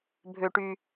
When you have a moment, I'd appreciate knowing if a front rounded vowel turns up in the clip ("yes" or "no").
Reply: yes